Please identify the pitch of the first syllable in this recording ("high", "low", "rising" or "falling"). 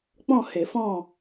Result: falling